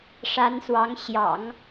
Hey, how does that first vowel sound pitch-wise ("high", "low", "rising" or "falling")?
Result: rising